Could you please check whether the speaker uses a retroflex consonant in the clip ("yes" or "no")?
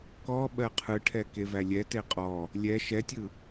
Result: yes